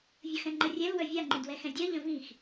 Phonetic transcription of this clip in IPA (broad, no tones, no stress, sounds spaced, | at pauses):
vʲ ə x ɛ̃ ŋ͡ǃ ə rʲ ɛ l w œ vʲ a ŋ͡ǃ ĩ d w ɛ x ɛ̃ dʲ ɜ ʎ ə̃ v ĩ x